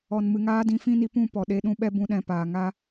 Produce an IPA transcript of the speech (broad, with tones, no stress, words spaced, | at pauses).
ɔ˨nmɨ˨ŋaː˦ dĩ˧fĩ˦ni˧pũ˦˨ pɔ˨ ɗe˧ɗũ˧ ɓɛ˦bũ˧ ɗɛ̃˨paː˨ ŋa˦